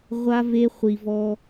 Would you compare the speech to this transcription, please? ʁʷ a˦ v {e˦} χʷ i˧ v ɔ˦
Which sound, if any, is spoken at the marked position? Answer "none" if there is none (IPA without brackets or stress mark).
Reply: e˦